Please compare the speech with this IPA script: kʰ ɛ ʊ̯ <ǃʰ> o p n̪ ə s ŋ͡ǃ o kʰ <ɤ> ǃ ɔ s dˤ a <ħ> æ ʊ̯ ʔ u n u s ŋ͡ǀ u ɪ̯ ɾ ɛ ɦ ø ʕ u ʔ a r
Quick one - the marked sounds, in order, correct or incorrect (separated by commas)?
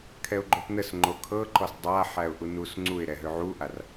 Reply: incorrect, correct, correct